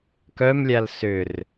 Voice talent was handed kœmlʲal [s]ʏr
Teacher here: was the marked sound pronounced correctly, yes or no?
yes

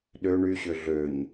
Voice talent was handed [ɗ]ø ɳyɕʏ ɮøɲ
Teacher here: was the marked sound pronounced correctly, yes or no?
yes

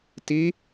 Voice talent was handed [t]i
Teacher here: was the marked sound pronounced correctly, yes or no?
yes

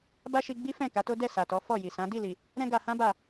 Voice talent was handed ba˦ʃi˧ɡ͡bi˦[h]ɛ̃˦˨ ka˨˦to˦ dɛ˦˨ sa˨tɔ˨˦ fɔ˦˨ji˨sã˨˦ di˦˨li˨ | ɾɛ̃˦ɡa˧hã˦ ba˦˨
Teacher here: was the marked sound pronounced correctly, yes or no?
no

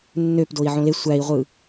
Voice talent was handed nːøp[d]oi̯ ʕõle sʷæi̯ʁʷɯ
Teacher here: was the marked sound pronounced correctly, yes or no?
yes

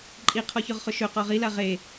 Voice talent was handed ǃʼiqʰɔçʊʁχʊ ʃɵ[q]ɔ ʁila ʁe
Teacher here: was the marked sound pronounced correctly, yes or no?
yes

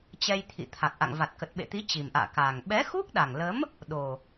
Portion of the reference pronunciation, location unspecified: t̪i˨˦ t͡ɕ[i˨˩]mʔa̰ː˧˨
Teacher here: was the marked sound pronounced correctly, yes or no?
yes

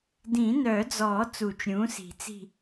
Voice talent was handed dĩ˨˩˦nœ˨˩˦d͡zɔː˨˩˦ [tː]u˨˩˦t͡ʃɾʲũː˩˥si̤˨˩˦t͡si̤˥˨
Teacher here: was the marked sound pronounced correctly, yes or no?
no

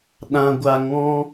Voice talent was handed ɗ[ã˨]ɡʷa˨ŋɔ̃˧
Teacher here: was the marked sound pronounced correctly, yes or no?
yes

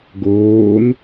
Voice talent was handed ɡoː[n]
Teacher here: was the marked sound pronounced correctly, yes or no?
yes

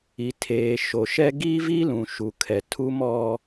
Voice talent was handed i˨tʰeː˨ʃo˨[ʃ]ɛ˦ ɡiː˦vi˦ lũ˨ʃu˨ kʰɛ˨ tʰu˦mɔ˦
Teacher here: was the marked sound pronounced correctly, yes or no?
yes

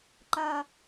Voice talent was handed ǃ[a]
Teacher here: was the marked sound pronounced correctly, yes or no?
yes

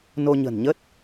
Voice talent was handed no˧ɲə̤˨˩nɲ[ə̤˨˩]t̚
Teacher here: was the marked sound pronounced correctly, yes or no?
no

